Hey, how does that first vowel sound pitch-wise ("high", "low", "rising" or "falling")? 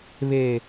low